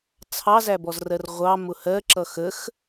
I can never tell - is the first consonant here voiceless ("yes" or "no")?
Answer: yes